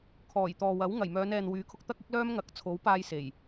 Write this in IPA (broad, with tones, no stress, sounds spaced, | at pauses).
kʰ ɔː˨˩ j t̪ ɔː˨ w ɐ˨˥ w ŋ ɐ˨˩ j m œː˨˧ n ɛː˨ n w yː˨˥ kʰ ʊ˧ k̚ t̪ ɐ˥ k̚ ɪ˥ k̚ l œː˥ m ŋ ɐ˨˥ k̚ t͡sʰ o˨˥ w p aː˧ j s e˨˩ j